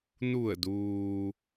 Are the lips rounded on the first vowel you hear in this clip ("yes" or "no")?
yes